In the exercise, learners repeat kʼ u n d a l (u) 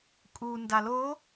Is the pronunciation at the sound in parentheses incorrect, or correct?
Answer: incorrect